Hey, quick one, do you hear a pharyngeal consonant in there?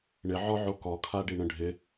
yes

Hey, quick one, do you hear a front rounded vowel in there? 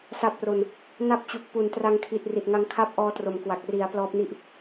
no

